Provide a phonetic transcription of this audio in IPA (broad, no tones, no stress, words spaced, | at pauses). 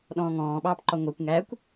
ɗɔ̃ːŋɔ̃ːɓɑːp ǃɒŋʷækʷ ŋækʷ